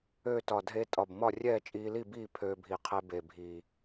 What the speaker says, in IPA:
ø˥˨ t ɒ˨˩ dʱ e˧ tʼ ɒ˨˩ b m ɒ˥˨ rʲ ɛː˥˨ t͡ʃʼ iː˧ l i˥˨ b iː˥˨ pʰ øː˧ bʱ i˨˩ qʰ e˧ b e˨˩ bʱ i˨˩

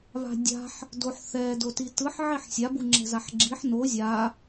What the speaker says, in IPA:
β a̤ dʲ a̤ ħ | d o ħ θ ɛ d o t i t ɯ ħ ʕ i ħ sʲ a b u ŋ͡ǁ ɛ̤ z a ħ ɡ͡ǁ i ħ n o zʲ a

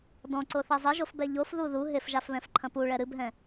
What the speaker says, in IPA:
d ɔ̃ ǀ o θ ɛ zˤ ɘ ʒ o f b ɛ ʎ o f ð u ð u ɦ e f ʒ a f β ɛ̃ f ǃʰ ɐ̃ p u ɭ ɛ ɾ ɨ b ɦ ɛ̃

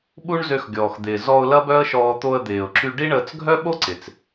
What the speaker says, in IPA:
ɓ u˦ ɳ z ø˧ x ɡʲ ɔː˨ x d̪ ɪː˨ z ɔ˧ ʊ̯ l ɐ˦ b œ˦ ə̯ ʃ ɔː˧ t̪ o˧ ə̯ d̪ ɪː˨ ʊ̯ ǁ y˧ ɖ i˦ ɳ əː˧ t͡s ɡʱ œ˦ ɓ o˦ ǀ ɪ˨ t͡s

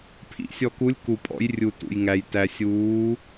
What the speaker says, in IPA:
pʰ ḭ˩˧ sʲ ɔ˩ k u˩˧ lʲ k u˩ pʼ ɔ̰˩˧ j rʲ u˩ t ṵ˩ j ŋ æ˩ j t æ˩ sʲ uː˩˧

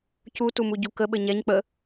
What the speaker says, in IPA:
c u t u m u ɟ u k ə ɓ ɘ ɲ ɛ ɲ k͡p ə

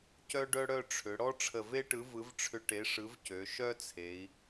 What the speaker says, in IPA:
c œ˥ ɖ œ˥ ɽ œ˥˧ ʈ͡ʂʰ ʏ˩˧ ɽ ɔ˥ ʈ͡ʂʰ ə˧˩ v e˥ ʈ ɯ˨˥ v ɯ˨˥ v ʈ͡ʂʰ ʏ˧ ʈ e˨˥ ʂ ɯ˨˥ v c ø˩˧ ʃ œ˥ t͡sʰ e˩˧ i̯

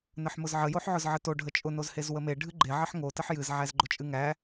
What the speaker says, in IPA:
n ə ħ m ʊ z ʕ ə j o ħ ʕ ʊ z ʕ ə t o ɖʱ ə t͡ʃʼ ʊ n o z h e z w ə m e ɖʱ ɨ ɡ͡ǃ e ʕ ə ħ ŋ o t ə ħ j ɨ z ʕ æ z ɡ͡ǃ ʊ t͡ʃʼ ɨ ŋ æ

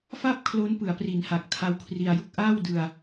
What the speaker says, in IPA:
f a˥˩ p̚ kʰ l o˦˥ n p ɯ˩˦ a̯ p r i˩˦ n h a˨˩ k̚ tʰ a˦˥ w kʰ r i˧ a̯ j u˥˩ k̚ ʔ aː˥˩ w d ɯ˧ a̯

